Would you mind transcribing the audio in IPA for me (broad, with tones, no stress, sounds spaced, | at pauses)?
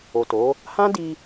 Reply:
o˨ t o˨˦ | h ã˦ d i˧